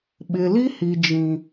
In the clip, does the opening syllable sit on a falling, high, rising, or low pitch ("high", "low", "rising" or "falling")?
low